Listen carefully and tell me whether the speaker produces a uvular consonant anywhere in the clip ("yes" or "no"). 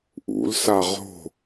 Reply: yes